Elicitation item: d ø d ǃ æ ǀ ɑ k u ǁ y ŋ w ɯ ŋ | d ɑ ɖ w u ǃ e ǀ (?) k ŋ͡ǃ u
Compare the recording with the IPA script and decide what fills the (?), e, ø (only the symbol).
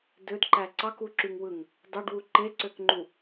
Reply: ø